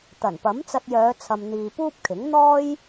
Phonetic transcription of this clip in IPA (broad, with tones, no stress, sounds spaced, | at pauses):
t̪ ɐ˨˩ n p ɐ˨˥ m t͡s ɐ˧ t̚ j œː˨˧ t͡sʰ ɐ˨ m n̪ iː˨ p uː˥ p̚ kʰ ɪ˨˥ ŋ n̪ ɔː˥ j